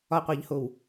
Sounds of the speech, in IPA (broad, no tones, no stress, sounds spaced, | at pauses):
ɒ qʷ e ʎ h o w